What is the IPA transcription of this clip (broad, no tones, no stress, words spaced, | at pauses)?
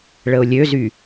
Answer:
ɭəʊ̯lʲøzy